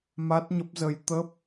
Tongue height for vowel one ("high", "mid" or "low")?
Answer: low